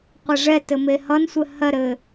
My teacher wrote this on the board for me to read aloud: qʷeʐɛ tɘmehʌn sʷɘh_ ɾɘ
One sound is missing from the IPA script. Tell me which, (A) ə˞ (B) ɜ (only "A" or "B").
B